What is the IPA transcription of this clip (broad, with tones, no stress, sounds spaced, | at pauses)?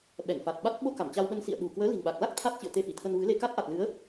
ɓ ɛ˧˩ ŋ f a˨˩ t̚ ɓ a˦˥ t̚ ɓ o˧ k a˧˩ m t͡ɕ a˧ w ɓ ə˧ n s ḭ˧˨ ə̯ ɗ ṳ˨˩ k w əː˨˦ l i̤˨˩ n ɓ a˨˩ k̚ l a˦˥ k̚ t̪ʰ a˦˥ t̚ t͡ɕ ɨ̰˧˨ ə̯ t̪ e˧ f i˧˩ t̪ʰ ə˧ n v ɨ˨˦ l e˧ k a˦˥ t̚ ʔ a˨˩ t̚ l ɨ˨˦ ə̯